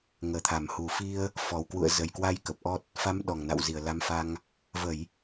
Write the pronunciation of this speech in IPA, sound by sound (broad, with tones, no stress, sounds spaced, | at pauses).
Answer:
ŋ əː˧˩ t̪ʰ a˧˩ m h u˧˩ f i˧ ə̯ | f ɔ˨˩ w k w ṵ˧˨ ə̯ z ə˨˩ j k w a˧ j k ə˨˩ p̚ ʔ ɔ˦˥ t̚ | f a˨˦ m ɗ ɔ˨˩ ŋ n a̰˧˨ w z i˧˩ ə̯ l a˨˦ m f a˧ ŋ | v ə˧˩˨ j